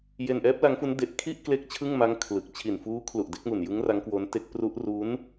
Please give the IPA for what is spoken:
je˧nʔɛː˦˥p̚la˦˥ŋfu˦˥n de˦˥ʔ kʰi˥˩ʔkle˦˥k̚ t͡ɕʰɯ˥˩ŋma˦˥ŋ kʰlɯ˨˩k̚ t͡ɕʰi˨˩nfuː˦˥ kʰlu˨˩ʔde˦˥k̚mu˨˩njɯ˦˥ŋ ra˦˥ŋkwo˦˥nte˦˥k̚ pru˦˥ʔ ru˦˥n

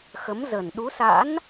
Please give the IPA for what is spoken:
xə˨˦mzə˨˩n ɗu˨˦sa̰˧˥n

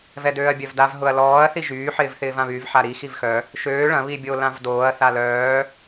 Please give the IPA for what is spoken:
vɛdøːɐ̯bʲœvdav ɦʊɐ̯lɔːɐ̯ θiʒyː ħɪːvθɪːvãβyv ħaɾi xivxœ | ʃøː ɭɐ̃ βibʲo lãvdoːɐ̯ θalœː

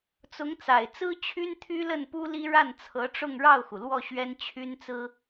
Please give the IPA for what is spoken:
t͡sʊ˧˥ŋ t͡sa˨˩ɪ̯t͡sɹ̩˥ t͡ɕʰy˥nt̪ʰy˥lə˥˩n pu˥li˥ ɻa˥˩nt͡sʰɤ˧˥ʈ͡ʂʊ˥˧ŋ ɻɑ˥˩ʊ̯xu˩ lwɔ˥˩ ɕɥɛ˥nt͡ɕʰy˥nt͡sɹ̩˥

